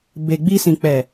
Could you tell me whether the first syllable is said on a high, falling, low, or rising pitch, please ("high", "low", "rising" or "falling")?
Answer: low